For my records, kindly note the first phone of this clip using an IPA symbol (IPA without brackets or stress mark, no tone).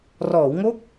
r